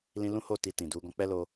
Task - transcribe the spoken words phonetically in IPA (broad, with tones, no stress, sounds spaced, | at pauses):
l ĩ˧ l ũ˦ h o˦˨ t i˧ t ĩ˨ d u˨˦ ɡ ɔ̃˧ k͡p ɛ˦ l o˧